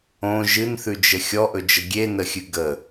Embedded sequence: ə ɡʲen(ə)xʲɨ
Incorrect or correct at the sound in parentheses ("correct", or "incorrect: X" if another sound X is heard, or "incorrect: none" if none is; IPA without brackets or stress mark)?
correct